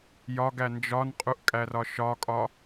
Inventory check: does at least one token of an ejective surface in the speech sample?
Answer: yes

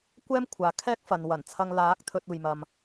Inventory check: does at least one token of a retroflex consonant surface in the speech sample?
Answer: no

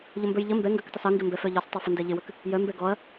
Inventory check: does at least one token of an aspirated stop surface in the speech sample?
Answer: no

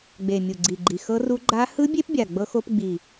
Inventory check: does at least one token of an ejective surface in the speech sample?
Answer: no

